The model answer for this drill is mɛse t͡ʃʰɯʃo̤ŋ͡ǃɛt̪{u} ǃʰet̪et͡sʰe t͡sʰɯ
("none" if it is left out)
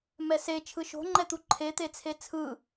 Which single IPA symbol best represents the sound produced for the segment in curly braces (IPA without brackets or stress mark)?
u